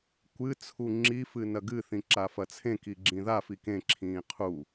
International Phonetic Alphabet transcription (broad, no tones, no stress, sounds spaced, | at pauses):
kʷ ɨ t͡sʰ u ŋ͡ǁ i f ɨ n ɐ ɡ ɨ θ ĩ ǁ a f ɐ t͡sʰ ẽ k i ɡ͡ǁ ĩ ð a f i k ẽ ǁʰ ĩː qʰ u